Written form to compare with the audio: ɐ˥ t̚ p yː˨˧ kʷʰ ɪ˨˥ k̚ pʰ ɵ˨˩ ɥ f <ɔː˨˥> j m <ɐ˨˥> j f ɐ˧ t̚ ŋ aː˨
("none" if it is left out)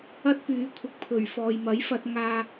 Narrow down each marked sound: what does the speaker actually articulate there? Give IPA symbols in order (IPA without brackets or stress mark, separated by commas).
ɔː˨, ɐ˨˥